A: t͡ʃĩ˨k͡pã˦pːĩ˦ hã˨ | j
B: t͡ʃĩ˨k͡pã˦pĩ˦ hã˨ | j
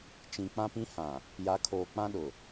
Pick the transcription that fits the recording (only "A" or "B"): B